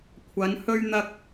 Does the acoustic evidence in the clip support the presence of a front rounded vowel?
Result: no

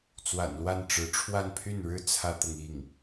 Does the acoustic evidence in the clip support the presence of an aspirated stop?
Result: yes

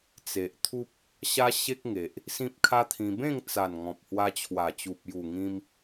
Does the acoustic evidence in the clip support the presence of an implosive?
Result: no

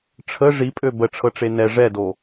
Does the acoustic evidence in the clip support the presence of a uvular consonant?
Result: no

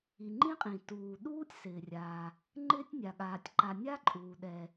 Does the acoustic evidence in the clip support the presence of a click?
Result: yes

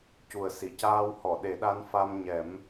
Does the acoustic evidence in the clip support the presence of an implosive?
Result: yes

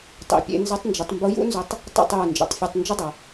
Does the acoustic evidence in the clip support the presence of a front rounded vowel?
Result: yes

